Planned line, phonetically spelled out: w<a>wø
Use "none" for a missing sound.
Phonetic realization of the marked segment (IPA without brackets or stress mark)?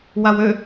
a